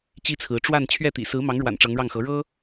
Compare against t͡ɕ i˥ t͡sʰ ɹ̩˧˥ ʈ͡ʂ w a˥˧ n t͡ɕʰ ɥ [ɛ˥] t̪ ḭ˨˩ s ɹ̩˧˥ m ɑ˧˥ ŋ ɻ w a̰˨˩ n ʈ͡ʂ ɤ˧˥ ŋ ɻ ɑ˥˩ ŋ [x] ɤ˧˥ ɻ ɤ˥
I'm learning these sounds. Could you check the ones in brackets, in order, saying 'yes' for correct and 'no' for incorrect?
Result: no, yes

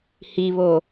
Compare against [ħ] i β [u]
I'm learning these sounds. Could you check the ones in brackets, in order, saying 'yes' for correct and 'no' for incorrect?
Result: no, no

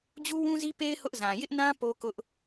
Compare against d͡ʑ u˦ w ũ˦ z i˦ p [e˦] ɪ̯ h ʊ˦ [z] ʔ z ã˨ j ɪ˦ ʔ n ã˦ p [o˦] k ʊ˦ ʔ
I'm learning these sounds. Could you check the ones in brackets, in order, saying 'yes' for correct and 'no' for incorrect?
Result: yes, no, yes

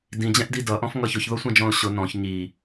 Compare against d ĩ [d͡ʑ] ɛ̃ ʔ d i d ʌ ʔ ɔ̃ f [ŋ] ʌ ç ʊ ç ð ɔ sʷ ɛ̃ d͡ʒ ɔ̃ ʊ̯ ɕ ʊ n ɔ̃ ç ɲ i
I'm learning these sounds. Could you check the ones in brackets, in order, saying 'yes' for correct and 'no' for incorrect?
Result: yes, yes

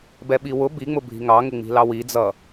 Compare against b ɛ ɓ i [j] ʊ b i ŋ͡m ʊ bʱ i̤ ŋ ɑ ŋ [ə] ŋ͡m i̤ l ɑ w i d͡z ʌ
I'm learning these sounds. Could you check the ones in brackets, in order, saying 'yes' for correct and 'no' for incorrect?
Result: no, no

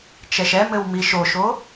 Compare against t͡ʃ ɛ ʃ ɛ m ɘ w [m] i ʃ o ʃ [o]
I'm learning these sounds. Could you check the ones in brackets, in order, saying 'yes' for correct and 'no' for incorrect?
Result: yes, yes

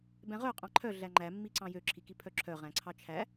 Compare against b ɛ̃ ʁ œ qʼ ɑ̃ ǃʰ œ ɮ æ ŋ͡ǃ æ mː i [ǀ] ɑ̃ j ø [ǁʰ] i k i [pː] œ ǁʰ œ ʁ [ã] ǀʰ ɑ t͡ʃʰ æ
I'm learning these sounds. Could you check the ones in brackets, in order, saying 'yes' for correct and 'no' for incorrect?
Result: yes, yes, no, no

